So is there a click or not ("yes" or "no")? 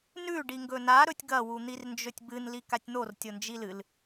no